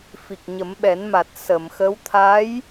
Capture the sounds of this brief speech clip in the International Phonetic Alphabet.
fi˨˩k̚ɲə˨˩˦mɓɛ˨˩˦n ma˨˩t̚ sə˨˩˨mxə˧˥w t̪ʰa˧˥j

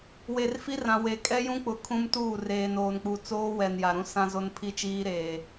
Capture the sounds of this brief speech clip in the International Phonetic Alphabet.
we˨rfi˦rã˨ we˨ kʼɛ˦jũ˦k͡pʊ˨ kʰũ˦mtuː˦˨ reː˨noː˨nk͡pu˨ t͡soː˦wɛ˨nja˨ɾũ˦ sã˦zo˦npʰi˦ t͡ʃiː˦ɾeː˨

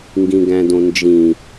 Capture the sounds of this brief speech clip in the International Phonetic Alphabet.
ŋɡĩɡæ̃dõnd͡ʒĩ

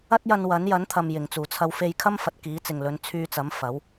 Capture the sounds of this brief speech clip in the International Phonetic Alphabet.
ɐ˥t̚jɐ˧n wɐ˨˥n jɐ˨˥nt̪ʰɐ˨m jɪ˨˩ŋt͡suː˨˩t͡sʰɐ˧w fe˧jkʰɐ˥m fɐ˨t̚ kiː˨˥t͡sɪ˨ŋlɵ˨˧n t͡sʰyː˧t͡sɐ˨˥m fɐ˨˥w

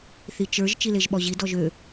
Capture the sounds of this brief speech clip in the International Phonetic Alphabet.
θit͡ʃə˞ʒ t͡ʃileʒɓɔʑi dɔʒø

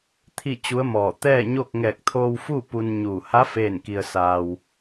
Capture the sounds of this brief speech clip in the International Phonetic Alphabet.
t̪ʰi˥˨ t͡ɕu˧˥ə̯mɔː˧˩ t̪ɛː˥˨ɲo˥˨k̚ ŋɛː˧˩k̚t̪ʰoː˧wfu˥˨ pu˧nɲuː˧˩ ha˧˥ feː˥˨nki˧ə̯saː˧w

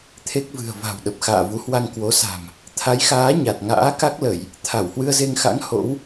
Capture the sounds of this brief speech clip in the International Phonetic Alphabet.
t̪ʰe˦˥k̚vɨ̤˨˩ə̯ va̤˨˩wɗə˨˩p̚ xa̰ː˧˨vu˨˦hwa˧ŋ kwo˨˦sa̤˨˩m | t̪ʰa˨˦jxaː˨˦ ɲa˨˩t̚ŋa̰ː˧˥ ka˦˥k̚lə˧˩˨j | t̪ʰa˧˩whwɨ˧ə̯ze˧ŋxa̰˧˥ŋ ho̰˧˥w

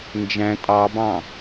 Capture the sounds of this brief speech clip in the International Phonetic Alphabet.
nd͡ʒæ̃ tʼɑbɑ̃

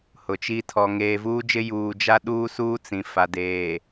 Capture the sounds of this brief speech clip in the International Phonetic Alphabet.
hʊ˨t͡ʃi˦ tʰɔ˨ ŋeː˨vuː˦d͡ʒɪ˦ juː˨d͡ʒa˦ ɗuː˦suː˦ t͡sĩ˨ fa˨deː˨

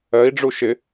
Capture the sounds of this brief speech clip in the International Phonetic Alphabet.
ɜi̯ɖ͡ʐu ʃɪ

